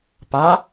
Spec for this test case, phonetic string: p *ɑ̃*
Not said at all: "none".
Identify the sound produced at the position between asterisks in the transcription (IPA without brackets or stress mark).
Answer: ɑ